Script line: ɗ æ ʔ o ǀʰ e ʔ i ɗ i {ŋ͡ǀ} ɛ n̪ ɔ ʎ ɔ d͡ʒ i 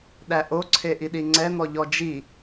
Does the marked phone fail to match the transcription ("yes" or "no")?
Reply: no